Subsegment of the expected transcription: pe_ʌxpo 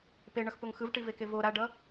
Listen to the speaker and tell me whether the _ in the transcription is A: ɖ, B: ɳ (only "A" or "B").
B